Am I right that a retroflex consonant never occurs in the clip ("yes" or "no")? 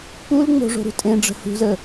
no